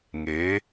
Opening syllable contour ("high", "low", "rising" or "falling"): rising